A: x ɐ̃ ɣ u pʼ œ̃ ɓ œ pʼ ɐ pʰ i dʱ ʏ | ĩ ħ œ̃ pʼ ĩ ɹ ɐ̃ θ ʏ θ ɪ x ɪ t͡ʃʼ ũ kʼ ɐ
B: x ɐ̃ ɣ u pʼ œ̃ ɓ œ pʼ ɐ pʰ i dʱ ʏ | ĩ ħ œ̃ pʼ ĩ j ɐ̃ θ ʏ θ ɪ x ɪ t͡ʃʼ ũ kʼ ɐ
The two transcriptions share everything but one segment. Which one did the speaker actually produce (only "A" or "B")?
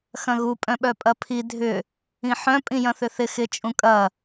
B